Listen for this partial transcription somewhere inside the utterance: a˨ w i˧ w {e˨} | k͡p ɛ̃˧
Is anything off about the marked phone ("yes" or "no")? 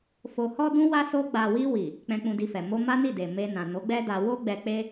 yes